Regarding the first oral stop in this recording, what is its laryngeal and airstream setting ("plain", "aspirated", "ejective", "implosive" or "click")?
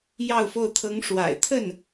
aspirated